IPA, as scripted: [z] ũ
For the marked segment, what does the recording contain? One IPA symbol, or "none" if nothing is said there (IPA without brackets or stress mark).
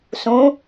s